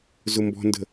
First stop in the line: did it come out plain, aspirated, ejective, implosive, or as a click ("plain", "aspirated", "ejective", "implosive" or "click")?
plain